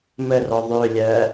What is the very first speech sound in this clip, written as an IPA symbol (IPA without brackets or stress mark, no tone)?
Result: m